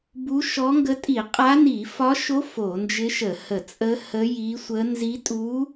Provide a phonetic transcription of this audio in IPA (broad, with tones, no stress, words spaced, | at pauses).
bu˧˥ʃɔ˧˥ŋɡə˧˥ tʼi˧˩˧qʼa˧˥ni˧˩˧ fɒ˧˥ʃo˧˥ fo˧˩˧nd͡ʒɪ˧˥ʃə˧˩˧ hə˧˩˧t͡sʼə˧˥ hə˧˥ji˧˥sʷə˧˥ nzi˧˥tʼu˧˥